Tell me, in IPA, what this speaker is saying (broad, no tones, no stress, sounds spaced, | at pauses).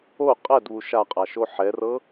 o qʼ ɛ d β u ʃ a qʼ a ʃ o ħ ɛ r ɤ